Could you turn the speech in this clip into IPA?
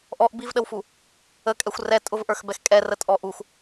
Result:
ʔ ɔ ʔ b i v ɗ ə w f u | ə kʼ ɛ xʷ r ɛ tʼ ʊ v ʔ ə˞ x b ɛ x kʼ ɛ r ə tʼ ɔ ʔ u x

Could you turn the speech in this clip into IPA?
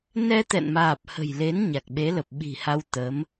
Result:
n ɛ˧ t̪ ɛ̰˧˨ n m aː˨˩ p̚ h ə̤˨˩ j l e˨˦ n ɲ a˨˩ k̚ ɓ e˨˦ l ə˨˩ p̚ ɓ i̤˨˩ h a˧ w t̪ ə˨˦ m

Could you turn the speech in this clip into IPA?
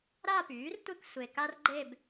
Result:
ɾ a˥˧ p yː˩˥ r tʷ e˥˧ k sʷ e˨ k a˥ r ɡ͡ǃ e˥˧ b

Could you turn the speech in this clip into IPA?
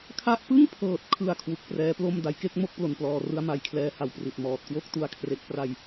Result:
kʰ a˥˩ ʔ p ɯ˥˩ ŋ pʰ ɤː˨˩ t̚ kʰ ɯ˨˩ a̯ kʰ w u˨˩ k̚ p r ɛː˦˥ p l o˥˩ m d a˩˦ j k e˥˩ k̚ m o˥˩ k̚ p l o˨˩ n p l ɔː˨˩ r ɯ˦˥ a̯ m a˩˦ j kʰ l ɛː˦˥ h a˩˦ w p r i˨˩ t̚ m ɔː˨˩ t̚ k w o˥˩ k̚ t u˧ a̯ kʰ r e˦˥ k̚ p r a˧ j

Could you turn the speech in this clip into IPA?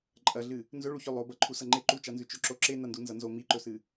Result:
ǃʼ ɐ ɮ ɨ | n z ɵ ɭ u ç ɵ lˠ o b ɐ ǃʰ u s ɐ ŋ͡ǃ e ǃ u t͡ʃ a n z ʉ t͡ʃ ɵ ǁ o ǁ e n ɐ n d u n z ɐ n z o m i ǃ ɵ s ɨ

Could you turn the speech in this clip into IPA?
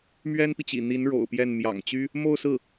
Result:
m ɥ ɛ˥ n p i˨ t͡ɕ ḭ˨˩ n̪ i˧˥ n ɻ o̰˨˩ ʊ̯ p j ɛ˥˩ n m j ɑ̰˨˩ ŋ t͡ɕ y˥ | m o˥˧ ʊ̯ s ɹ̩˥˩

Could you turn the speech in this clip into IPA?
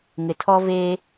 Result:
ŋ ɪ˨ tʰ ɔ˦ v eː˦

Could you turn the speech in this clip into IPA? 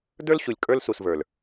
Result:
d ə˞˦ l ɕ u˨ lʲ kʼ ə˞˦ l s u˨ s v ə˞˨ l

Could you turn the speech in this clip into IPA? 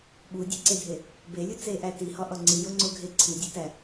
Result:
ɓ u dʲ e ǀ e dʱ e | b e lʲ u t͡s e ʔ æ t i h ɒ ʔ ɒ ŋ͡ǀ i j o ŋ͡ǀ o ɡʱ e ǀʰ i dʲ æ t æ

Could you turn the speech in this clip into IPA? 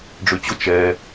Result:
ɖ͡ʐ y t͡ɕ ʊ t͡ʃ ɛ

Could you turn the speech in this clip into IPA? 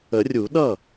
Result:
ə˨˩˦ rʲ u˨˩˦ ɗ ʌ˥˩

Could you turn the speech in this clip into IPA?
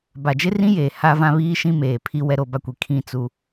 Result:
b a˨ d͡ʒ ɪ˦ r ĩ˦ j eː˨ h a˦ v ã˦ β iː˦ ʃ ĩ˦ m eː˨ pʰ i˦ w ɛ˦ ɾ o˦˨ b a˦ kʷ i˨ kʰ ĩ˦ t͡s u˦

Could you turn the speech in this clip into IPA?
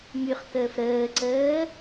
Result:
m y χ k əː f ɾ əː ǀ əː

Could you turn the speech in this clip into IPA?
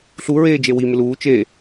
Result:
ɬ u ɹ eː d͡ʒ e w i m ɪ l uː t͡ʃ e

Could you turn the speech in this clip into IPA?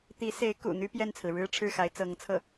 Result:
t̪ i˧˥ s e˧˥ ɪ̯ k ṵ˨˩ n̪ y˥ p j ɛ˥˩ n t͡sʰ ɹ̩˩ ɻ ɻ̩˥ ʈ͡ʂʰ ɻ̩˥˩ x a˧˥ ɪ̯ t͡s ɤ˧˥ ŋ t͡sʰ ɤ˥˩

